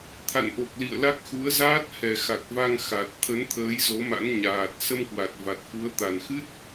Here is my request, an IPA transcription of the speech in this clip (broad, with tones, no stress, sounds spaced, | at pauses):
t̪ʰ a̰˧˨ n ʔ o˨˩ k̚ l ḭ˧˨ ə̯ l a˦˥ k̚ x u˨˦ ə̯ z aː˦˥ t̚ h ɛ˨˩ x a˨˩ k̚ v a˧ ŋ x a˨˩ t̚ t̪ʰ ə˨˦ n t̪ʰ əː˨˦ j z o˨˦ m a̰˧˥ n ɲ aː˨˩ t̚ s ə˧ m k w a˨˩ t̚ v a˨˩ t̚ f u˨˦ ə̯ t̪ a˨˩ n x ɨ˦˥ t̚